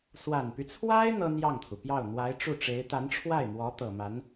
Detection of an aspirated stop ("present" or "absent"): present